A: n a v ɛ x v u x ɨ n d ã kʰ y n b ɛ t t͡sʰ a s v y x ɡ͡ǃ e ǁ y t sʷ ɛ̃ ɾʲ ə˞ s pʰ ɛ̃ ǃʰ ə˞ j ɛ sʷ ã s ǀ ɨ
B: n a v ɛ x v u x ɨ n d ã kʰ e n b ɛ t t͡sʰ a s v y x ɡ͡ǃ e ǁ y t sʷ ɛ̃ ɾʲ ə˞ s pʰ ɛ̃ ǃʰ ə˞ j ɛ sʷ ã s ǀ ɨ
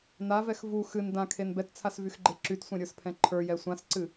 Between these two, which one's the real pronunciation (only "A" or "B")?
B